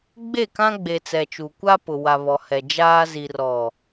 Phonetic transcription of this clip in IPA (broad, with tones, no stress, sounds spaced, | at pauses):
ɡ͡b e˦˨ k ã˦ ɡ͡b e˨ t͡s ɛ˨ t͡ʃ u˨ kʷ a˦ p ʊ˨ w a˨ β ɔ˨ h ɛ˨ d͡ʒ aː˦ z i˨ r ɔ˨